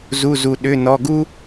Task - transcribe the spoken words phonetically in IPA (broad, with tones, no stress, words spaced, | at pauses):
zu˩˧˩zu˩ ɗʏ˩˧˩ nɔ˩˧˩ɡu˥